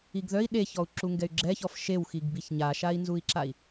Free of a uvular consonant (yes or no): yes